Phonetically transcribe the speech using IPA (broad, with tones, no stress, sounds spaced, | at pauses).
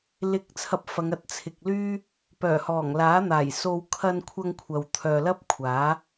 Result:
l ɪ˨ k̚ t͡sʰ ɐ˧ p̚ f ɐ˨˧ ŋ ɐ˧ t̚ t͡sʰ ɪ˨ k̚ l yː˥ | p œː˨˩ h ɔː˨˩ ŋ l aː˨˥ n̪ aː˨˩ j s o˧ w kʰ ɐ˧ n kʷʰ ɐ˧ ŋ kʷʰ ɐ˨ w t̪ʰ œː˨ l ɐ˥ p̚ kʷʰ aː˨˥